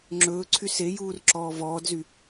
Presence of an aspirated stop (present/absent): present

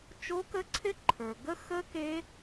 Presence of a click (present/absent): present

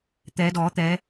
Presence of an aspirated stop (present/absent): absent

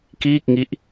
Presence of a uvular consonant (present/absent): absent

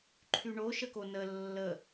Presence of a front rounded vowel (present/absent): present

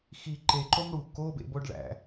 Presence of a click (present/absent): present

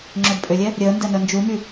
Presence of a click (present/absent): present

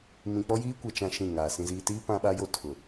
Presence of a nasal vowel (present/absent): present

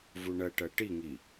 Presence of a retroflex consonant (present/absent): present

